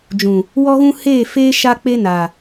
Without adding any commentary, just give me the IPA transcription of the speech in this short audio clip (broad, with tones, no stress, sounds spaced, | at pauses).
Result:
d͡ʒ ũ˨ | w ɔ˦ ɣ ũ˦ h eː˦˨ f eː˦ ʃ a˦ k͡p e˦ n a˨